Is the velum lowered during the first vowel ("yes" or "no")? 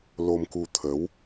no